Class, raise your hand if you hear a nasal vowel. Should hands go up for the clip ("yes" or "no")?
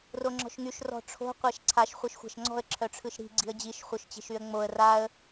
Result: no